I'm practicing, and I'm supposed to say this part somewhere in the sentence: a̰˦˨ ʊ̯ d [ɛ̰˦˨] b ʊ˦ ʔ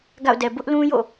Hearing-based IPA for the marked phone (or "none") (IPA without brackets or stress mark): ɛ˨